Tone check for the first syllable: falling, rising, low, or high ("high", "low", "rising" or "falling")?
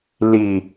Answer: low